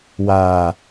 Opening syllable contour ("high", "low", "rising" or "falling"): low